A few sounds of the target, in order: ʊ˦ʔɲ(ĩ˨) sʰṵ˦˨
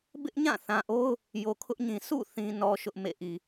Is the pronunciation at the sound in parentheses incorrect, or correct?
correct